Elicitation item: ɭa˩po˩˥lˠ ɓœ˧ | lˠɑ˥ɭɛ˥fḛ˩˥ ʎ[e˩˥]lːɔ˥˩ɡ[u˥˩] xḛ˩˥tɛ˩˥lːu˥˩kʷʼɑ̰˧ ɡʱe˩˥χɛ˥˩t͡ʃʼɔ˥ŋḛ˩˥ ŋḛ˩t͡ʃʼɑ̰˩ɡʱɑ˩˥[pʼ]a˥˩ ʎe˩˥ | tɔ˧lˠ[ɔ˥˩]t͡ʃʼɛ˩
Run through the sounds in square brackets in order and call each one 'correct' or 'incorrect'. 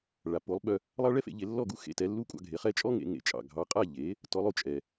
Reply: correct, correct, incorrect: qʼ, incorrect: o˥˩

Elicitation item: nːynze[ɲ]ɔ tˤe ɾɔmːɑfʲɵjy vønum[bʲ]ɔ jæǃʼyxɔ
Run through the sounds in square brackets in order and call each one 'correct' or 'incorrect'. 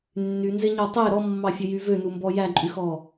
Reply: correct, incorrect: b

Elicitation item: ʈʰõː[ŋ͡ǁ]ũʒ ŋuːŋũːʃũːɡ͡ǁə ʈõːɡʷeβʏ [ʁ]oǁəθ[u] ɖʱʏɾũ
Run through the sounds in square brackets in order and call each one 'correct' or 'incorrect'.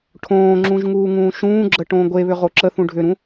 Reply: correct, correct, incorrect: ũ

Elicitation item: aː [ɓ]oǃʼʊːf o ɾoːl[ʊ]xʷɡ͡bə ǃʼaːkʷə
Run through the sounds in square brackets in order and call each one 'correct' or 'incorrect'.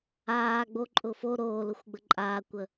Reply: incorrect: ɡ͡b, correct

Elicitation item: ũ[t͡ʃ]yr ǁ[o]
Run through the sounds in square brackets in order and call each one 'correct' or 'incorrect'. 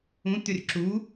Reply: incorrect: t̪, incorrect: u

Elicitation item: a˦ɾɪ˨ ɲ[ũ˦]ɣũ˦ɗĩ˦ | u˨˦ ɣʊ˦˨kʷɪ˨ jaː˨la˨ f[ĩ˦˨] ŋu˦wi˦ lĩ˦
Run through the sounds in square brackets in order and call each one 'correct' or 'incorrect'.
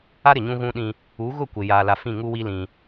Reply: correct, correct

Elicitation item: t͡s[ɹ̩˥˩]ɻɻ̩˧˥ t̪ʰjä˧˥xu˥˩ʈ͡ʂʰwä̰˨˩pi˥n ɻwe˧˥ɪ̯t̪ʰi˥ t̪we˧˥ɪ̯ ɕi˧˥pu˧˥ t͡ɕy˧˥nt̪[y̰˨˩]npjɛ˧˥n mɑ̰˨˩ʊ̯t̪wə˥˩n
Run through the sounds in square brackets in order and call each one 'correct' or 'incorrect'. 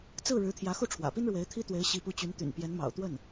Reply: correct, correct

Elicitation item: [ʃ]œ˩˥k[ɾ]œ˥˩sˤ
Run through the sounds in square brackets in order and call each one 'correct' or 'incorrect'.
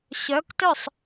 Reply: incorrect: ɕ, incorrect: t

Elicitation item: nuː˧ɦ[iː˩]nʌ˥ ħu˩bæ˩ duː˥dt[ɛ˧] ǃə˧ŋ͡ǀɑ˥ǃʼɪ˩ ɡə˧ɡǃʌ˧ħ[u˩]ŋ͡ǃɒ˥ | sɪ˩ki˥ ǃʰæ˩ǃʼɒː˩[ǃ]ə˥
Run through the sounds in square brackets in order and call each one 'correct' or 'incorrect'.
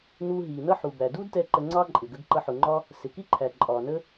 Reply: correct, correct, incorrect: ʊ˩, incorrect: n

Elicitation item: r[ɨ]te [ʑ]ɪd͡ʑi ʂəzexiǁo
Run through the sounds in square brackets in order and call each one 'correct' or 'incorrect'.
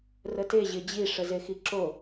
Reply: incorrect: ə, correct

